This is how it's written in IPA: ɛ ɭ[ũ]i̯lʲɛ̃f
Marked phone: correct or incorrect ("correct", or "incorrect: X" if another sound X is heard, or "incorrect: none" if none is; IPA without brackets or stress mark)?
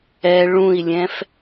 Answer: correct